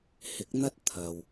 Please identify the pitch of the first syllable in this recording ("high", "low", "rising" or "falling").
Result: rising